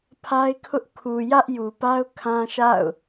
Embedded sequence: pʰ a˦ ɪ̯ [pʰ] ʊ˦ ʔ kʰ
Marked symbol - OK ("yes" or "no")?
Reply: no